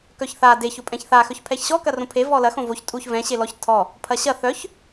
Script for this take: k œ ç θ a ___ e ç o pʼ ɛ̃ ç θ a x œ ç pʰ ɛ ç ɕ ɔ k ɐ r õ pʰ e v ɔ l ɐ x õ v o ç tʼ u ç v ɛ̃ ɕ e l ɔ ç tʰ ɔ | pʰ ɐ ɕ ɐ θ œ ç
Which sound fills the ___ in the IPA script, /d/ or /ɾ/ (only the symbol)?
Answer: d